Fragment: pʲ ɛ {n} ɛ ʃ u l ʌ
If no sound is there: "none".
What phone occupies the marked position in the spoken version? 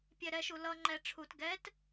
ɾ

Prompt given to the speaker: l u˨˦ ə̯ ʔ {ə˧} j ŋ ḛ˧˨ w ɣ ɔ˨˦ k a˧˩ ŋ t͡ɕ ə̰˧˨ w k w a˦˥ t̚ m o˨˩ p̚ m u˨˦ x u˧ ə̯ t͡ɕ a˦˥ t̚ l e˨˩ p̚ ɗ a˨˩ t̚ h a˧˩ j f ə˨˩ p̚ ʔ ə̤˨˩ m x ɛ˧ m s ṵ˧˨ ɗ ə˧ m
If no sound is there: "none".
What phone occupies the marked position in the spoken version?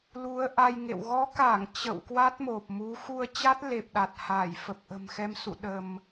a˧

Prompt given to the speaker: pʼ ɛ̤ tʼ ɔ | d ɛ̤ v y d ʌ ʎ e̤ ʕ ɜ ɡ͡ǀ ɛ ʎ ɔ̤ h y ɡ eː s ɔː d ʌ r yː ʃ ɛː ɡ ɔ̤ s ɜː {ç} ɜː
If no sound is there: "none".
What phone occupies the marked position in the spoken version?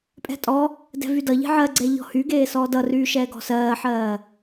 ħ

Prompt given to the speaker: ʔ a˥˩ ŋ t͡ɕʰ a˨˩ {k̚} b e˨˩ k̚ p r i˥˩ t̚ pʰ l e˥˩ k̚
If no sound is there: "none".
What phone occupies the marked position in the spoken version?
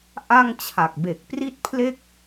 k̚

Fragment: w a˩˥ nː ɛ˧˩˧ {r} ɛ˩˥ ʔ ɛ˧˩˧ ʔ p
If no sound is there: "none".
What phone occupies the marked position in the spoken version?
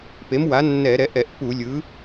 ɾ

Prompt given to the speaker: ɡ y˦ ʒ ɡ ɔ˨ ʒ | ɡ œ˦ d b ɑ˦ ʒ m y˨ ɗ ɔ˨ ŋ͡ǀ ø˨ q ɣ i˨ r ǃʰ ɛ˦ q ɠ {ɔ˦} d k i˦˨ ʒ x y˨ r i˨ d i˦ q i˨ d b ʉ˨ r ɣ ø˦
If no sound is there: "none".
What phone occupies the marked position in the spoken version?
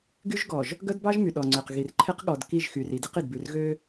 ɔ˨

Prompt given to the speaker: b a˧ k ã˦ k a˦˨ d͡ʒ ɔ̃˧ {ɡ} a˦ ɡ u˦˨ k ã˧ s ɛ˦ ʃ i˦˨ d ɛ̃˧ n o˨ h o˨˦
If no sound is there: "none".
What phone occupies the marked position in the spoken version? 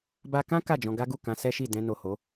ɡ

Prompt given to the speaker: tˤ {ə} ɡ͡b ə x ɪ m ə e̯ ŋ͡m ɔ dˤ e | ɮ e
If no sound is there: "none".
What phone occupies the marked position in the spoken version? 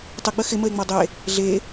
ə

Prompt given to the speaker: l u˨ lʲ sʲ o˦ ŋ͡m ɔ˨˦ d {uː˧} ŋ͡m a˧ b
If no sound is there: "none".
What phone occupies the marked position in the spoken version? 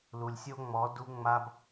u˧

